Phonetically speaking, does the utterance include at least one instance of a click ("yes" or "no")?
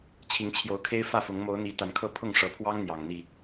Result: no